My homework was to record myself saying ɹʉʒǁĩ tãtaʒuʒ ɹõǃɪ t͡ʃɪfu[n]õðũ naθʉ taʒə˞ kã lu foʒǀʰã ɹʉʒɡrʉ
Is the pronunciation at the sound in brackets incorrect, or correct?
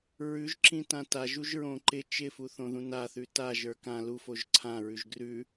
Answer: incorrect